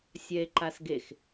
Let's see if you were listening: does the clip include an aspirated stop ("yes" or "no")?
no